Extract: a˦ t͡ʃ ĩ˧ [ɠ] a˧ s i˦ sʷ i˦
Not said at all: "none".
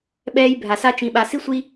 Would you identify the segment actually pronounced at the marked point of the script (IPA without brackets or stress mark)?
ɓ